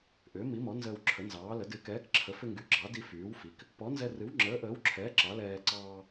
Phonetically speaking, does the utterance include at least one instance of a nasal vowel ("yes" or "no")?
no